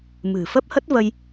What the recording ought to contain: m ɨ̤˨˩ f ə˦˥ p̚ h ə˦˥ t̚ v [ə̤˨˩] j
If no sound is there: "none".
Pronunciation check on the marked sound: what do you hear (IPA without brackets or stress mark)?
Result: ə˧